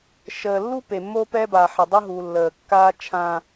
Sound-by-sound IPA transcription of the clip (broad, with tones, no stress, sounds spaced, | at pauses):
ʃ əː˨ lː u˦ p e˨ mː o˦ p ɛ˦ b a˨ ħ e˨ dˤ ʊ˦ ɦ u˨ lː əː˨ kː aː˦ t͡ʃʰ ã˦